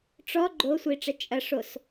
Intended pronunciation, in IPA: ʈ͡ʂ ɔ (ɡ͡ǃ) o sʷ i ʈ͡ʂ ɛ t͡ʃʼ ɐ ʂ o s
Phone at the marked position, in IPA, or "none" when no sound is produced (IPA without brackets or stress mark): ɡ͡ǃ